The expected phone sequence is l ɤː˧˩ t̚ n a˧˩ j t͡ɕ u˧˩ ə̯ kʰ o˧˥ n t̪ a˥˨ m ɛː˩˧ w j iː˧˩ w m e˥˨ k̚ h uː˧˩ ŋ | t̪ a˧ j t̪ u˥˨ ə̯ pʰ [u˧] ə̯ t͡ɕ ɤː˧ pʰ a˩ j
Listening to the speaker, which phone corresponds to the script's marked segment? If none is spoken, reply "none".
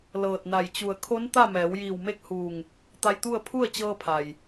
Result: u˥˨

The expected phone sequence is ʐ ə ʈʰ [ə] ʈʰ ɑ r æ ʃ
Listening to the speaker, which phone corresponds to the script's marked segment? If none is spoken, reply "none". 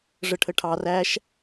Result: ə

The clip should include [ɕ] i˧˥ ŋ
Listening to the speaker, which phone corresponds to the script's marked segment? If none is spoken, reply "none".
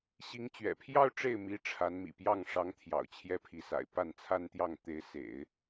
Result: ɕ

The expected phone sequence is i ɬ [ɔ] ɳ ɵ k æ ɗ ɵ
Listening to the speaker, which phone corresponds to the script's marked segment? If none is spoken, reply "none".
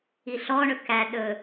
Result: ɔ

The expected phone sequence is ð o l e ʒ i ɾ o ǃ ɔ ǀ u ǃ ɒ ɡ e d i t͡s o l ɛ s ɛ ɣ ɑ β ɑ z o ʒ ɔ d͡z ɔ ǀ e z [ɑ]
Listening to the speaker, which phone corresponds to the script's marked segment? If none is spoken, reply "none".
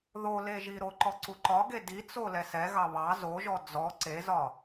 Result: ɒ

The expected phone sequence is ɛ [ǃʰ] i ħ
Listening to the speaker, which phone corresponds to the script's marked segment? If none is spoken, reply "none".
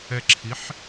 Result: ǁʰ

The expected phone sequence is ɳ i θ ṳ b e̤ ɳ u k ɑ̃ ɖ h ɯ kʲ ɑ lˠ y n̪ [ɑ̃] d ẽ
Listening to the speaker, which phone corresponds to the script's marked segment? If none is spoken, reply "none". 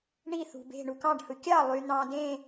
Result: ɑ̃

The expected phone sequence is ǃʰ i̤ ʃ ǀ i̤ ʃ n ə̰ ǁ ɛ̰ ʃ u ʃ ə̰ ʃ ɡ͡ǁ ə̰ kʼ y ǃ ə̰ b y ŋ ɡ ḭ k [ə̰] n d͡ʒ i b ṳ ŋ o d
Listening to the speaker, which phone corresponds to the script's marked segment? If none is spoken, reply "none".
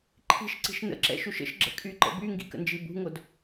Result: ə̰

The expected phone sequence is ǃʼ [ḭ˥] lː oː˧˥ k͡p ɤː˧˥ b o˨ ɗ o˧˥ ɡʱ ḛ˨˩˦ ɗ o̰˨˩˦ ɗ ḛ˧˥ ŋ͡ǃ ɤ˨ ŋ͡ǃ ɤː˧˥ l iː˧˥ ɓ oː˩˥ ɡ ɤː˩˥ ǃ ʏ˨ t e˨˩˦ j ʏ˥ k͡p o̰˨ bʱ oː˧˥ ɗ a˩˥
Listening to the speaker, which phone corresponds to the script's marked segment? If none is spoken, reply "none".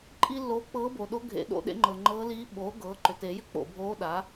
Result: i˥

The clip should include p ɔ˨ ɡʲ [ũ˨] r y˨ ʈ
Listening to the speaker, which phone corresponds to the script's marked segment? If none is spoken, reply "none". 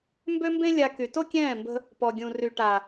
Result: ũ˨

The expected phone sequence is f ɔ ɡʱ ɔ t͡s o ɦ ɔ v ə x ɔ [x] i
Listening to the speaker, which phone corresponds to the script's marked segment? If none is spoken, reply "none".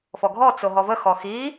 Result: x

